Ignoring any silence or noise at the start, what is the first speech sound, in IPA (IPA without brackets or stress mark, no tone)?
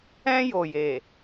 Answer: ɛ̃